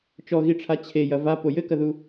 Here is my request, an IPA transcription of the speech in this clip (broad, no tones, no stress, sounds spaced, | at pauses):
t͡ʃ ɔ ɣ i ʈ͡ʂʰ a t͡ɕʰ e j ɐ v a p o j ɘ k ɐ ð u